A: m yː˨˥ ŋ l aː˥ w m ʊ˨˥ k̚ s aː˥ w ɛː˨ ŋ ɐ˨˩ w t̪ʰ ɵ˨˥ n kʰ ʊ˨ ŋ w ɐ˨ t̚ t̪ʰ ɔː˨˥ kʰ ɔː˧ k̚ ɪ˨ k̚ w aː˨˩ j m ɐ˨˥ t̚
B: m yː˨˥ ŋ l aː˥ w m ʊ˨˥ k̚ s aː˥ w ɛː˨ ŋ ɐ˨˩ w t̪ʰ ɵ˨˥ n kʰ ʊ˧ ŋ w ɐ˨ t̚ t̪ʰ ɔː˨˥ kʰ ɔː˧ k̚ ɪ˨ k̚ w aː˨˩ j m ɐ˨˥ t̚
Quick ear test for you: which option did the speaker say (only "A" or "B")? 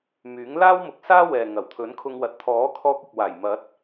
B